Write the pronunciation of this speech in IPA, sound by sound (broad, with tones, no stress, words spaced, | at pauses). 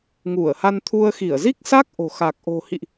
ŋu˧˩ə̯ha˧nt̪ʰu˧ə̯ xi˧˩ə̯zi˦˥k̚sa˦˥k̚ ʔo̤˨˩ xa˨˩k̚ʔo̤˨˩hḭ˧˨ʔ